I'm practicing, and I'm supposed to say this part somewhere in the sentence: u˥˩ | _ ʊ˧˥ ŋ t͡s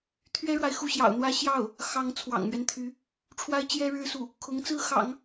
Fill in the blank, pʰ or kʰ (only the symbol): kʰ